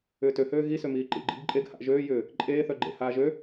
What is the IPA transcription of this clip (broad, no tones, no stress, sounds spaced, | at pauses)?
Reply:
ʏː t ø h øː ɣ i s ø m iː ǃ ḭ ɡ͡ǃ ḭ b ǃʼ e ɡ h a̰ ʔ ʒ øː j ʏː | ǃʼ eː θ œ ɡ͡ǃ ḛ h aː ʒ ø